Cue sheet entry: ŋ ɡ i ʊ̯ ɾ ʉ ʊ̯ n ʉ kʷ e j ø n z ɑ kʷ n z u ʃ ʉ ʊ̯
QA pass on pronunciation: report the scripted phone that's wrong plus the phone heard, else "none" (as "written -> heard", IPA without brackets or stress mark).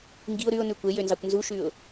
none